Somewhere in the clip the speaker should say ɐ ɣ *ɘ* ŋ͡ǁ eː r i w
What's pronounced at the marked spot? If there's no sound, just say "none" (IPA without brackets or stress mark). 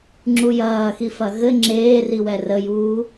ɘ